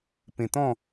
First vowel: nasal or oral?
nasal